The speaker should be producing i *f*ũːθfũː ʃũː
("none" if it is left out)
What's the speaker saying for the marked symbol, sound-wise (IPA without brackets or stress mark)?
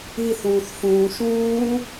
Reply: θ